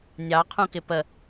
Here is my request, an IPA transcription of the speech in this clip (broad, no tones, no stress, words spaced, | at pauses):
nʲɑ qʰũkɪpə